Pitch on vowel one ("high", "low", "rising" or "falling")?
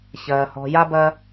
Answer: low